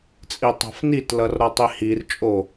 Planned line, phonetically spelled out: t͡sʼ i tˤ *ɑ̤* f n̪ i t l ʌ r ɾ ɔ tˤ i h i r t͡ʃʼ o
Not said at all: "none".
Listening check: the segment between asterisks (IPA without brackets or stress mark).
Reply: ɑ̤